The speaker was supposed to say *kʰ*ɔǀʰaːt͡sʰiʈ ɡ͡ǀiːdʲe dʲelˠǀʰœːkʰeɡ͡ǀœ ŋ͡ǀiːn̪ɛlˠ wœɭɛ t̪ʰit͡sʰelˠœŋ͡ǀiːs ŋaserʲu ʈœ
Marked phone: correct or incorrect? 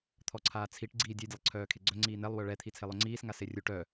incorrect